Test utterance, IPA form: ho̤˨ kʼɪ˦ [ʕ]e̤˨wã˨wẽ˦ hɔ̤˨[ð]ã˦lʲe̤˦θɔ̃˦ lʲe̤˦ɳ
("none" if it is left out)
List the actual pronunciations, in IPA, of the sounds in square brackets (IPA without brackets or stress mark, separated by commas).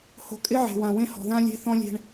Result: ʕ, ð